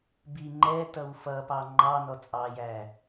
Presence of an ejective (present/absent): present